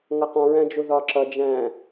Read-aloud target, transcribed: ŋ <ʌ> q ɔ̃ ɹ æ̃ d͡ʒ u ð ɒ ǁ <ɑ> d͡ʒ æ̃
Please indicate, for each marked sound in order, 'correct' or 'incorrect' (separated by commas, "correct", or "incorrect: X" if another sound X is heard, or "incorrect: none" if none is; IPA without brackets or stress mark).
correct, incorrect: ʌ